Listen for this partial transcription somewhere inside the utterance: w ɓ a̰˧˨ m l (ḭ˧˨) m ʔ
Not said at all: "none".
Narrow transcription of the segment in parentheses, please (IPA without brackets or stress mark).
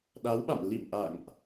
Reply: ḭ˧˨